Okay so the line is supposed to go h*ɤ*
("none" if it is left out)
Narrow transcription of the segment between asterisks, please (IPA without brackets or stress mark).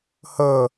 ɤ